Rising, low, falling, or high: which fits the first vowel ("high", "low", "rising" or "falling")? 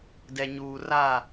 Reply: low